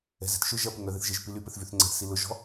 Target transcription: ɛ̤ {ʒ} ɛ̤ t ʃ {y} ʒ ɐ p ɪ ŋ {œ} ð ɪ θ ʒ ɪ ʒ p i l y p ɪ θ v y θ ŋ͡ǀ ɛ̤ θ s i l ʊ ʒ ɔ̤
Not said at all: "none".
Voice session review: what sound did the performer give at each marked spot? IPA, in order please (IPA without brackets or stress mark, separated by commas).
z, ø, œ